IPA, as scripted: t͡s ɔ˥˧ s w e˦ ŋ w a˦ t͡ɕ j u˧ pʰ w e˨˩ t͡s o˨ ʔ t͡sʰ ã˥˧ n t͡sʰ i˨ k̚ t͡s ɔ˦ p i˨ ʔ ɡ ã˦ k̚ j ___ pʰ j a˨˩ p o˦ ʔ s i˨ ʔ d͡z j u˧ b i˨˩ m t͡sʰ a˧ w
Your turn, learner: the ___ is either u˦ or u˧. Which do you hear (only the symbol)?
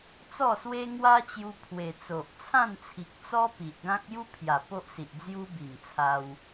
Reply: u˦